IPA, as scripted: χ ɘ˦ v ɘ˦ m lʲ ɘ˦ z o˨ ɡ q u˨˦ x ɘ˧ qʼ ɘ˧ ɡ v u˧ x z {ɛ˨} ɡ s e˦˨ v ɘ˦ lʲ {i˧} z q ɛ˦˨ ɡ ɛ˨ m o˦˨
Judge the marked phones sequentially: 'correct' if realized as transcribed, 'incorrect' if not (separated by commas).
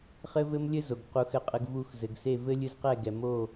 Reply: incorrect, incorrect